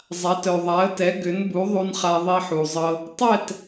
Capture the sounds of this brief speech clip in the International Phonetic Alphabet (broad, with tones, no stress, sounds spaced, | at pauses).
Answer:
zˤ a˩˥ t œ˩ ðˤ a˩˥ ə̯ t ɛ˩˥ ɡ ʏ˩˥ n b u˩˥ ðˤ u˧ n χ a˧ ðˤ i˧ ħ u˩ zˤ ɤ˧ | tˤ ɛ˥˩ t